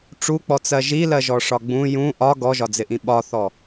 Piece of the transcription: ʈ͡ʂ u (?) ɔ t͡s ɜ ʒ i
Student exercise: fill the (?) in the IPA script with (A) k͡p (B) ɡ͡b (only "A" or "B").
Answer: A